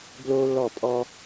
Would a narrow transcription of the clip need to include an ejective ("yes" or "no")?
yes